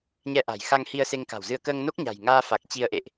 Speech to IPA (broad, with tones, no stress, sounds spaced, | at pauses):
ɲ ɛ˧ ʔ a̤˨˩ j x a˧ ŋ h i˧ ə̯ s e˧ ŋ k a̤˨˩ w z ɨ˧ ə̯ k əː˧ ŋ n o˦˥ k̚ ɲ a̤˨˩ j ŋ aː˧ f a˨˩ k̚ t͡ɕ i˧ ə̯ ʔ ḛ˧˨ ʔ